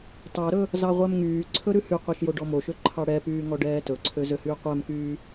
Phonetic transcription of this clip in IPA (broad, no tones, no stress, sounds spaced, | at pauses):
t ɑ ɾ ɵ | z ɑ ʁʷ æ m ŋ yː ǀʰ ɵ ɾ ʉ h y qʷ ɛ ʃ j o ɖ ɔ m o ʃ ø ǃʰ ɑ ɽ ɛ p yː ŋ ɔ ɖ ɛː t ɵ ǀʰ ø z ø h yː qʷ æ m k yː